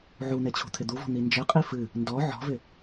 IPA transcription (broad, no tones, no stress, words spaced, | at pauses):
ʕun̪e t͡ɕʰṳt̪ʰɪd̪uvɔ̤ n̪ind͡ʒɪqʼi fɨ | ndɔ ʕɔ̤vɪ